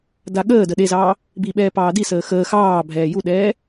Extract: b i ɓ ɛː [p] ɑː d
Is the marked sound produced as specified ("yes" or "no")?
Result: yes